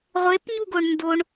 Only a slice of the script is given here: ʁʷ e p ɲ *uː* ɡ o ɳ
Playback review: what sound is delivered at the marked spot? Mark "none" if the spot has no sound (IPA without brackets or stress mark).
u